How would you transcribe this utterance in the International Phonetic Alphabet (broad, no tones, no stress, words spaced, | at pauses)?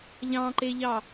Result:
ʎɑ̃ǃeʎɑ